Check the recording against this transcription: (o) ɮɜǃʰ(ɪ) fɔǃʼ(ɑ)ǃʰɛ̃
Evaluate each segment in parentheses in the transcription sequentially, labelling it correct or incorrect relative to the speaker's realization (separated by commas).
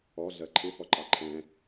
incorrect, correct, correct